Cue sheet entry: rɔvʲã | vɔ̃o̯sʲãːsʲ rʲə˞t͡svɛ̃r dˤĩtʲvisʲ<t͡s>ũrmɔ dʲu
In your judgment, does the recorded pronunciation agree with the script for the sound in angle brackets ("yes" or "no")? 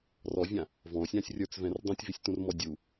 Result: no